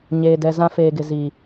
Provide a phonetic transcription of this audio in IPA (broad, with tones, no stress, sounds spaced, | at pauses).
ɲ eː˨ d ɛ˨ z ã˦ f eː˨ ɡ ɪ˨ z i˨